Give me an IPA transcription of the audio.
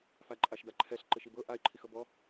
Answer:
f a ǃʼ a ʃ d a ǃʰ ɛ ɬ ǃ e ʃ i b ɤ ʔ a ɪ̯ ǃʰ i x ɤ b ɔ

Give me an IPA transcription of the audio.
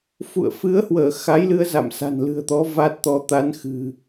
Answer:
f ṵ˧˨ ə̯ f ɨ˨˦ ə̯ h w əː˧˩ x a˨˦ j l ɨ˧ ə̯ z a̰˧˨ m s a̤˨˩ n l ɨ̤˨˩ ə̯ t̪ ɔ˨˦ v a˦˥ t̚ t̪ ɔ˨˦ t̪ a˨˦ n x ɨ̤˨˩

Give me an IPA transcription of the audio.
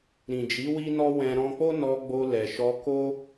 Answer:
ɾ ĩ˨ d͡ʒ i˨˦ w i˦ n ɔ˦ w ɛ̃˧ ɾ ɔ̃˧ k͡p o˦ n ɔ˧ ɡ͡b o˧ l ɛ˨ ʃ ɔ˧ k o˦

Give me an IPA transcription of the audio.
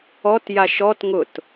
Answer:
ɔ t j a ʃ ɔ t ŋ ʊ t

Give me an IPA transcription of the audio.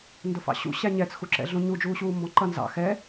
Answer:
n d ʊ f ɑ̰ ɕ ṵ ɕ æ ɲ ɛ t͡s x u ǁ ɛ̰ ɮ ũ ɲ u d͡ʒ uː ɕ uː m b ɔ̃ ǃ ʌ n z ɑ̰ x ɛ

